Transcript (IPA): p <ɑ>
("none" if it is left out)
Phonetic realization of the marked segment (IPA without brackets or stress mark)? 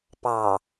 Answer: ɑ